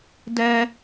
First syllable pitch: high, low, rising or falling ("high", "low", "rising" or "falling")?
high